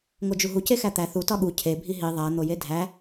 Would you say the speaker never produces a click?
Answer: yes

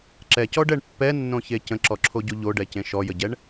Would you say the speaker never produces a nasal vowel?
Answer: no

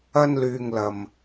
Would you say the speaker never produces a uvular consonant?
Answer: yes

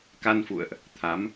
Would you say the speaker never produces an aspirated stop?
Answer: no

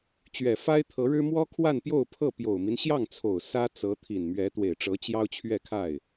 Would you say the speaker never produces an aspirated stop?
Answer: no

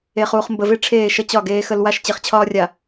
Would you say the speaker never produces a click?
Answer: yes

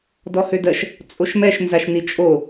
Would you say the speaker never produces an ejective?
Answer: no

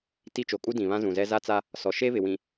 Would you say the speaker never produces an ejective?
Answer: no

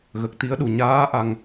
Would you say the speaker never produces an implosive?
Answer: no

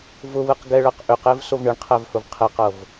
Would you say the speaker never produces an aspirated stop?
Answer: no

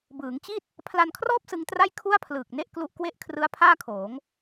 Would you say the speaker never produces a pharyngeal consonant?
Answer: yes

